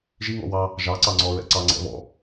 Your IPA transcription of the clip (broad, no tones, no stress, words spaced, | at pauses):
ʒi ŋɔ̰wɑ | ʒɑǀɑ ŋ͡ǀɔɹɛ̰ǀɑ ŋ͡ǀɛ̰βɔ̰